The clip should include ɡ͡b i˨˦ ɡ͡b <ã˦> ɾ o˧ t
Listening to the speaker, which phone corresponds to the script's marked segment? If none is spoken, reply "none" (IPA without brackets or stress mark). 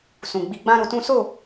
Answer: ã˦